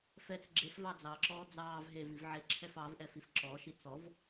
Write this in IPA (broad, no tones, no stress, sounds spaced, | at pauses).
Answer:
f ɛ t͡s ɡ͡ǁ e f v ɑ d͡z ɑ ǁ ɔː d͡z ɑː v ɦ e v i v ʕ e ǁʰ ɛ f ɑ v ʔ ɛ f i f ǁ ɔ ʃ i t͡s ɔ v